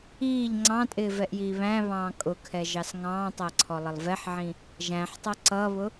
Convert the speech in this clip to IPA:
iː ʎ ŋ͡ǀ ɑ̃ tʼ ɪː v ɛ ʔ j iː β æ̃ β ɑ̃ː kʼ ʊ kʰ ɛ ʒ ɑ s ŋ ɑ̃ː tˤ æ ǀʰ ɔ lˠ ə lˠ v ɛ ħ ʕ ĩ | ʒ æ̃ ħ tˤ ʌ ǀ ʌ β ʊ

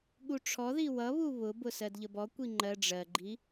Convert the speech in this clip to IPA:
ɠ u ʈ͡ʂʰ ɔ ð i w ʌ β u β ʊ b ʊ s ɜ d ʎ ə b ɔ kʷ i ŋ͡ǃ ɜ ɖ͡ʐ ɜ ɡ͡ǃ i

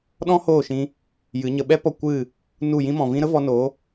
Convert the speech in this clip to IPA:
ɗ ɔ̃˦ h oː˦˨ ʃ ĩ˧ | j ɨ˨˦ ɲ ə˧ ɓ ɛ˦ p ɔ˦˨ kʷ ɨ˦˨ | n u˦˨ j ĩ˦ m ɔ̃˨ v ĩ˦ ɾ ə˦ v ɔ˧ n o˨˦

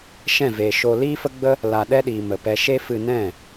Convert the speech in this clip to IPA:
ʃ ɛ̃˦˨ v eː˨ ʃ o˦ l iː˦ f ə˦ ɡ͡b ə˦ | l a˧ ɗ ɛ˦ ɗ iː˨ m ə˨ p ɛ˧ ʃ e˦ f ɨ˧ n ɛ̃˦˨

